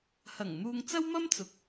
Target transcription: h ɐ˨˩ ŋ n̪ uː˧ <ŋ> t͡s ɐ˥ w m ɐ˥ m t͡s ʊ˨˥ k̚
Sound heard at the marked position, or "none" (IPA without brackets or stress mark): ŋ